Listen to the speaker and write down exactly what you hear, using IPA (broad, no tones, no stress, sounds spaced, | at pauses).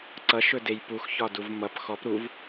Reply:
ǀ ʌ ʃ ɵ d e j p u x ç ɒ d u v m ʌ p x ɔ p ɾ u v